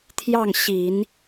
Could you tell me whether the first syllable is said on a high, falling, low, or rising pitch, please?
falling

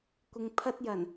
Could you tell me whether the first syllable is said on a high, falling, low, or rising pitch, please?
low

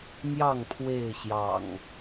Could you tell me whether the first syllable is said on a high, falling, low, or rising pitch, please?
falling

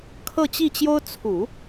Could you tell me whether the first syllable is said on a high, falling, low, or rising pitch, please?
falling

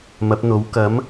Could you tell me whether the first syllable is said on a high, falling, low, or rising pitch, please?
rising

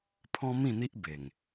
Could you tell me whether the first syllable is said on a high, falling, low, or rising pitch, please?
high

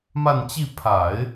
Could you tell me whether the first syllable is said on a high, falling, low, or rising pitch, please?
falling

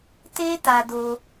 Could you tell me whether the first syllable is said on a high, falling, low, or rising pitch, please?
high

